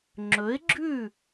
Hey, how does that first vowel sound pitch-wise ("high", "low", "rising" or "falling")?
rising